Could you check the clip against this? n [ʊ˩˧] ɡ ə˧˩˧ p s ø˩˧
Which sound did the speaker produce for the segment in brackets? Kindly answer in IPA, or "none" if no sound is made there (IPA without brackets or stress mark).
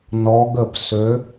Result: ɔ˩˧